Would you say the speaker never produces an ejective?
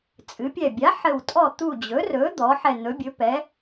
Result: no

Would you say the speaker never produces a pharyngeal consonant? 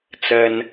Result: yes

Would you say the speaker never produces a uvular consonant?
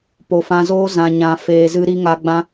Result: yes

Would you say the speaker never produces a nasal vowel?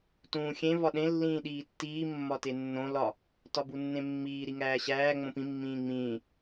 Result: no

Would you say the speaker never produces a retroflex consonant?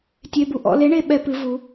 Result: no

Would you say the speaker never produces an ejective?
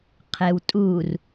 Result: no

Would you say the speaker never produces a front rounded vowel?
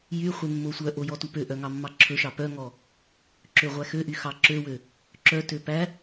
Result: no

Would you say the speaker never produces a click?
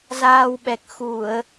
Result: yes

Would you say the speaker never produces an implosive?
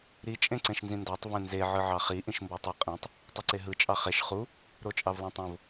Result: yes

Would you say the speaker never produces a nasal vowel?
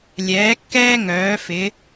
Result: yes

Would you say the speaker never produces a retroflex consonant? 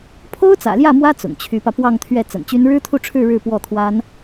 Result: no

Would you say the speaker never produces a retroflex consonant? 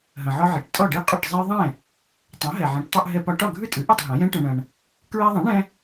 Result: no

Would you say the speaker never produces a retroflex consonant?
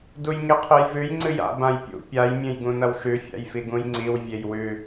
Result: yes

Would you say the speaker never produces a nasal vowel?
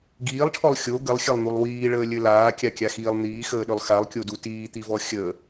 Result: yes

